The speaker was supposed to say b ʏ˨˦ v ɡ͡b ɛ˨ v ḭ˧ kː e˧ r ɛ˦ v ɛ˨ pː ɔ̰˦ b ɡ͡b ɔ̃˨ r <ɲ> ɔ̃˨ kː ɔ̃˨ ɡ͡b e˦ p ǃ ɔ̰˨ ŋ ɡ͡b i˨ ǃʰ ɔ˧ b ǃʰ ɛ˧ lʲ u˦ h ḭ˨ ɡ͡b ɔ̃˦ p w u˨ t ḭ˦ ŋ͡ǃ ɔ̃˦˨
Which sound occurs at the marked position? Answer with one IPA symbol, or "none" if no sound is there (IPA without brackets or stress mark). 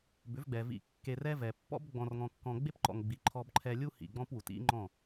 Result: ŋ